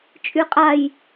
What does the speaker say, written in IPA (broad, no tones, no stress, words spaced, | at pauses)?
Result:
t͡ʃʼyqʼaj